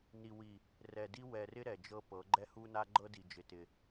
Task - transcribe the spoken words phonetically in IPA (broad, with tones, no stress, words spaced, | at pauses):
ni˨wi˨ | rɛ˨di˦ wɛ˨rɪ˦ ɾɛ˨d͡ʒɤ˦ pɤ˨˦ ɡ͡ǃɛ˦hu˦na˦ ɡ͡ǃɤ˦di˨d͡ʒɪ˨ tɪ˨